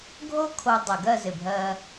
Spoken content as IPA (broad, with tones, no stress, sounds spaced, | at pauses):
ɡʱ o˥ kʰ o˧ dˤ ə˧˩ ɡ ɜ˥˧ z ɪ˧˩ bʱ ɜ˧